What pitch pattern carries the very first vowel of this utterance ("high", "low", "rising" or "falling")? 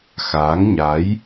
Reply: rising